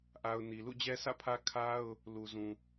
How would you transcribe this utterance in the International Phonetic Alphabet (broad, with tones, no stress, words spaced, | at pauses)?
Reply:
ʔa˨ʊ̯ ni˨ lṵ˦˨d͡ʑɛ˦sʰä̰˦˨pʰä˦ kʰa˦ʊ̯ | lu˨ zũ˨